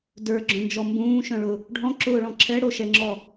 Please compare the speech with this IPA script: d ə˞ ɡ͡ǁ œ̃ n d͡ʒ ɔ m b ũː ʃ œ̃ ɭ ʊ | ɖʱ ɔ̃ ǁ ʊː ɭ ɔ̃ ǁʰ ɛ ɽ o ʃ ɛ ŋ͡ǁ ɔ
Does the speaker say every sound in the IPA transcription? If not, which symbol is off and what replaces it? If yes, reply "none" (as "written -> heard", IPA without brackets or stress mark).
none